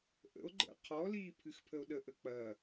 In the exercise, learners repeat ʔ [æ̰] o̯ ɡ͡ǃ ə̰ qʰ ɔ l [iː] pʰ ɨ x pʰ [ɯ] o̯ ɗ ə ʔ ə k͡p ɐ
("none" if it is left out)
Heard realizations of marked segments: ə̰, iː, ə

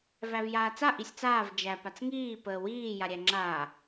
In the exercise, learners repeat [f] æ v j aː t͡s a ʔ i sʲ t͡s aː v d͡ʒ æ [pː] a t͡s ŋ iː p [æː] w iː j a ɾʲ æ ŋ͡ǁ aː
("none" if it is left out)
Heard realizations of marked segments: v, p, əː

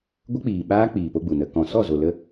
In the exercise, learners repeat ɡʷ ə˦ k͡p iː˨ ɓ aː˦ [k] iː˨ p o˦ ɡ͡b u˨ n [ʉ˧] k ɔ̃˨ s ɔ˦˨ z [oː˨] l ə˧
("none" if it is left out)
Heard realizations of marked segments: k͡p, ə˧, o˨

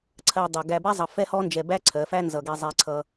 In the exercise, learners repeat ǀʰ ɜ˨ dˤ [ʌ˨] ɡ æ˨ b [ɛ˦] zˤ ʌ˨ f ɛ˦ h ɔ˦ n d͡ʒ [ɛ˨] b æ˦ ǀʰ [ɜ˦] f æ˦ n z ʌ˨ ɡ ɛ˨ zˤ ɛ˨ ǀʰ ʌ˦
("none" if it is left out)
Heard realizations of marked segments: ʌ˨, ɛ˦, ɛ˨, ɜ˨˦

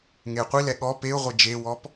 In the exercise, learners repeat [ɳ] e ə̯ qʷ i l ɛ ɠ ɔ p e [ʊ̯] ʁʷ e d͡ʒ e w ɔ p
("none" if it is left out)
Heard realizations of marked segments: ŋ, ʊ̯

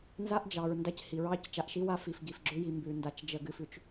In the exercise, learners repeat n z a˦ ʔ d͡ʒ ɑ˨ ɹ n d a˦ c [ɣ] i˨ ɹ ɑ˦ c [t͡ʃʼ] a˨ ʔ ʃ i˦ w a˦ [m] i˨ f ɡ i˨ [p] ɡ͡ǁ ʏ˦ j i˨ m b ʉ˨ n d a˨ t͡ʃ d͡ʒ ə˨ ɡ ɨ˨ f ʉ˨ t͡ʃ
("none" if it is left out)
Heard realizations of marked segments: h, t͡ʃ, f, f

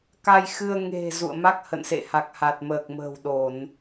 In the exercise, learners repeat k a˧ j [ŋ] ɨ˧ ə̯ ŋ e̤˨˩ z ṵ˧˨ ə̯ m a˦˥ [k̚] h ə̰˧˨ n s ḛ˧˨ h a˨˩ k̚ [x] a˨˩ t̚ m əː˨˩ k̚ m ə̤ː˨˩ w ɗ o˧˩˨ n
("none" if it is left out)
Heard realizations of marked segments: x, k̚, h

